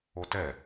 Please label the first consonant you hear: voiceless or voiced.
voiceless